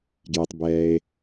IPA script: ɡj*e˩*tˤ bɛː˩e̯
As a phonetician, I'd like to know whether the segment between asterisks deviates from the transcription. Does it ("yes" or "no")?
no